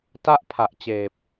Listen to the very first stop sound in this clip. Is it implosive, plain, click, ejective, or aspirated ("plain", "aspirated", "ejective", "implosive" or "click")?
plain